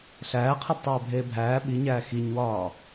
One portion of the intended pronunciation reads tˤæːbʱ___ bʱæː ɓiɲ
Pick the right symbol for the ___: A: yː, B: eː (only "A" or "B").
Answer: B